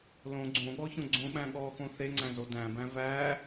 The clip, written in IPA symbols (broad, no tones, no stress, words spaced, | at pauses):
lõ ɡ͡ǀõɠɔçõ ɡ͡ǀõɓæ̃ ɠɔxõ θeŋ͡ǀæ̃zo dæ̃bæ̃ væ